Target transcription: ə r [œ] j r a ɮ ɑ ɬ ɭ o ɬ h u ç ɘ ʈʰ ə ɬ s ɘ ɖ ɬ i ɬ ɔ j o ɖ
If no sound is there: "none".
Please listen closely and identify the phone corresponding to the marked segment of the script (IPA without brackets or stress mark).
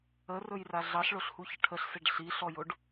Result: ɵ